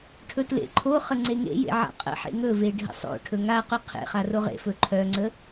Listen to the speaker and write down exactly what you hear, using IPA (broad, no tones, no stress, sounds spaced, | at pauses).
ʈʰ ɵ t l ḛ ǃʰ o χ ə ŋ͡ǀ e ŋ ḛ j ḛ ʕ a̰ qʼ ə̰ ħ ḛ ŋ ɵ v e ɖʱ ə̰ sˤ o̰ ʈʰ ɵ ŋ a q ɵ qʰ ḛ χ a r o ʁ ḛ f ɵ ǃʰ œ ŋ͡ǀ ə